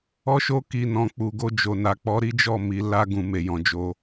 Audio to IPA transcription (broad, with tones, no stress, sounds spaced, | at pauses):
ɔ˦ ʃ o˦ k i˦˨ n ɔ̃˧ k͡p u˨ ɡ o˧ d͡ʒ o˨ n a˨ k͡p ɔ˨˦ ɾ i˦ d͡ʒ ɔ˦˨ m i˨˦ l a˧ ɡ ũ˨ m e˨ j ɔ̃˨ d͡ʒ o˧